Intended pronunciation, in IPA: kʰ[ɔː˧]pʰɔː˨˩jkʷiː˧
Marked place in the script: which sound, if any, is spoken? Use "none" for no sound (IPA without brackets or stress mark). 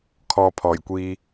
ɔː˧